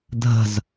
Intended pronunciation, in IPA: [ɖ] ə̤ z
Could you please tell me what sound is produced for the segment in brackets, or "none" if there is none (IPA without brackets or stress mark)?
dʱ